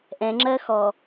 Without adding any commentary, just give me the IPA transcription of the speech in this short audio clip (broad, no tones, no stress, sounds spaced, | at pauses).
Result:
ʔ ɛ̃ ŋ͡ǁ ɜ x ɔ